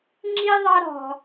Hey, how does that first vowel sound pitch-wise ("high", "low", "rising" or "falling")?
high